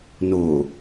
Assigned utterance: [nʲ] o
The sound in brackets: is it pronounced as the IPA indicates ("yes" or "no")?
no